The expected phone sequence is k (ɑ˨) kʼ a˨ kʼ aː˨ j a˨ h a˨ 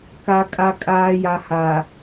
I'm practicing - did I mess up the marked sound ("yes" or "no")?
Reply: yes